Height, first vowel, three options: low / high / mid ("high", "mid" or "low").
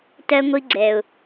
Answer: mid